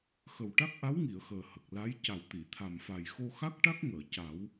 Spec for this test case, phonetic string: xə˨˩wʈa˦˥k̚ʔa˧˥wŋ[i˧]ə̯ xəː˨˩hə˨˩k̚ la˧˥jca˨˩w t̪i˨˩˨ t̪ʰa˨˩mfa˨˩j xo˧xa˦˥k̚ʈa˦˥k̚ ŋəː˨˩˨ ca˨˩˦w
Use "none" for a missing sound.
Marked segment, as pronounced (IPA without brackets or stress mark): i˨˩˨